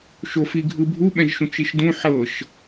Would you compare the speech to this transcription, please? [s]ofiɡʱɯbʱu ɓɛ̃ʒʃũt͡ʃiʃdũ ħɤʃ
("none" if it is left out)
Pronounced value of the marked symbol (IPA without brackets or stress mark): ʃ